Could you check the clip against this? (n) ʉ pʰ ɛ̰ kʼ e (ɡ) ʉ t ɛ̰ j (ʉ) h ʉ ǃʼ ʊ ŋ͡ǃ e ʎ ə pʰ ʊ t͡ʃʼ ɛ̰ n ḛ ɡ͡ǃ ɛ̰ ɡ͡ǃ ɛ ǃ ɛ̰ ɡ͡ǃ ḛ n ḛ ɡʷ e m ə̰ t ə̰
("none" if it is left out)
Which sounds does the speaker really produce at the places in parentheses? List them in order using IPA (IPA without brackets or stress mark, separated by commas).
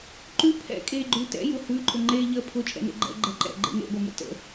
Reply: ǃ, ɡ͡ǃ, ʊ